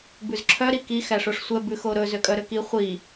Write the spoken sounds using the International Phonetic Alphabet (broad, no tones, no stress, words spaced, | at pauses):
bʉzǁʰœ ɾiki xæʂoʂsʷɛ bʉxoɾɵ zøkʼœɾøki χʷi